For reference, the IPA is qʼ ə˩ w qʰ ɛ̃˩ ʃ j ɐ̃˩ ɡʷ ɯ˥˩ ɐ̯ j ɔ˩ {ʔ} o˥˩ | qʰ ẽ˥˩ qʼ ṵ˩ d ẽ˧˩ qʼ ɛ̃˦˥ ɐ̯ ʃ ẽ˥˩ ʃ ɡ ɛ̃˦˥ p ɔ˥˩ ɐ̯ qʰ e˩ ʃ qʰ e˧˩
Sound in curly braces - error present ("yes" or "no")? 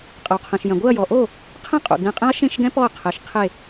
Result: no